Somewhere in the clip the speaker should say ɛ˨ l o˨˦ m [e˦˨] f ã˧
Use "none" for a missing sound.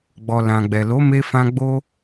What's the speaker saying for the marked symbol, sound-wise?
e˧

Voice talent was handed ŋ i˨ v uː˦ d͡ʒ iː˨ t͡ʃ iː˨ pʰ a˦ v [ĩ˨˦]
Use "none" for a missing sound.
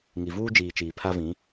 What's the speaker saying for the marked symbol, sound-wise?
ĩ˨˦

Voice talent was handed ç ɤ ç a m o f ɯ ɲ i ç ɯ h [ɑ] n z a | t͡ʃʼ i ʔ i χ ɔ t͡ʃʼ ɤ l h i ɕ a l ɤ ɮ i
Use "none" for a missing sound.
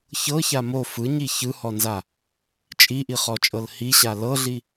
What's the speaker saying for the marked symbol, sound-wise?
ɔ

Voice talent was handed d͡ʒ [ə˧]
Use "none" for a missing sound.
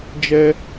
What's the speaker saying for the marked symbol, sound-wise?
ɛ˧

